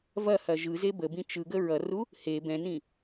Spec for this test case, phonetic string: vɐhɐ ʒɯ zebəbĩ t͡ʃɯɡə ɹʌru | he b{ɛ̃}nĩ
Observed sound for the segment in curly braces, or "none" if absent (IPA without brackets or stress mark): ɛ̃